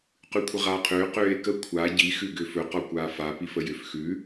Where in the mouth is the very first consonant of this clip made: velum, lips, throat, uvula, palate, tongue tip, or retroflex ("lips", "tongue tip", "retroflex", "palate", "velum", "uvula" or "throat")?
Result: uvula